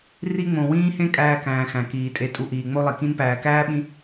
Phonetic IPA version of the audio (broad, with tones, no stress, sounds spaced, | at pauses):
r i˦ ŋ͡m õ˨ w ĩː˥ h ẽ˥ kʼ æː˦ k æ̃ː˨ x æ̃˩ k iː˩ tʼ e˨ tʼ u˨ ʔ iː˩ ŋ͡m o˦ lˠ i˩ k ĩ˦ n p æː˨ k æː˥ ɓ ĩ˦